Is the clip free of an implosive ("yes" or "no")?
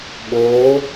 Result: no